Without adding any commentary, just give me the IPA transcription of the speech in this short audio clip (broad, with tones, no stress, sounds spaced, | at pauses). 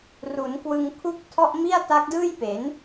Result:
r u˩˦ n k w ɯ˧ ŋ kʰ u˥˩ k̚ tʰ ɔ˥˩ ʔ m i˥˩ a̯ t a˦˥ k̚ d ɯː˥˩ j p e˩˦ n